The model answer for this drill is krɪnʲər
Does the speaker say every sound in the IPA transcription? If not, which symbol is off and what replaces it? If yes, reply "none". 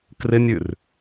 ə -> ʉ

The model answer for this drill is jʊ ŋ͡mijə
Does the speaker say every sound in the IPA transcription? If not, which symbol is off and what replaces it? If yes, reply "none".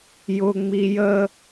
none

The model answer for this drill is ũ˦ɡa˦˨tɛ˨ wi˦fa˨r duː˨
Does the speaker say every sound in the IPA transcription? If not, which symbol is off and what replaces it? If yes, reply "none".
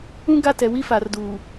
none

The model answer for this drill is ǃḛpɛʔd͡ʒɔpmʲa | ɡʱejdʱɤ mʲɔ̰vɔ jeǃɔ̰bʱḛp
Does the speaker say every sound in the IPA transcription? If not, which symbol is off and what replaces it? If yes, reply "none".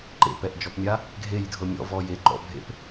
none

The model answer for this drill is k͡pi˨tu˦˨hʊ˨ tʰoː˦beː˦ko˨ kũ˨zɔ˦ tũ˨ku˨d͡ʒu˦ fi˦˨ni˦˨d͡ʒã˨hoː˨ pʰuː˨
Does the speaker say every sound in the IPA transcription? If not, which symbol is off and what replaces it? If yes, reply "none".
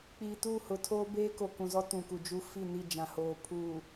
none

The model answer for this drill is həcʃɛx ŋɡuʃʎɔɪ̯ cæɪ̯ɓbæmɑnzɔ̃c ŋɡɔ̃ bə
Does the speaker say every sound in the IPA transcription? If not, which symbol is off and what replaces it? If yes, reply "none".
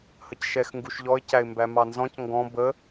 ɓ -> m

